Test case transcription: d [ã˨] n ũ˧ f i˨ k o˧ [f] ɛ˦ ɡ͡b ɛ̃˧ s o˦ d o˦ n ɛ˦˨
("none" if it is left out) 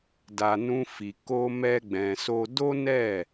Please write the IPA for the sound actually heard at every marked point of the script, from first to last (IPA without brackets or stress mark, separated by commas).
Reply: a˨, m